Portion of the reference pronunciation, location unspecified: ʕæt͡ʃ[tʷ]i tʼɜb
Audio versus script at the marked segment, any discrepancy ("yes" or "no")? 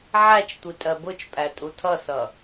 no